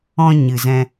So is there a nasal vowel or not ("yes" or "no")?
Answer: yes